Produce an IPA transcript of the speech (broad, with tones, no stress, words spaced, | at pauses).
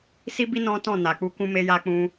si˦bi˦ nɔ̃˦tɔ̃˦˨ na˨k͡pu˧ kũ˦me˦ja˦ k͡pũ˧